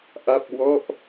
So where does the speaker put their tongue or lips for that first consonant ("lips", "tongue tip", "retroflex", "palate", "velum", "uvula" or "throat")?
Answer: throat